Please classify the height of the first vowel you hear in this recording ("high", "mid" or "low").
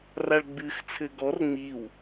low